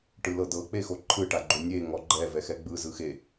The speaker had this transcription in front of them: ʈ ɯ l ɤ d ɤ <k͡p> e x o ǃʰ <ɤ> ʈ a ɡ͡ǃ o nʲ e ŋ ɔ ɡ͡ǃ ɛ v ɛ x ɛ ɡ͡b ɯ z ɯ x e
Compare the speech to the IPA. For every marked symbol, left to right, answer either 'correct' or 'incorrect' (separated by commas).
correct, incorrect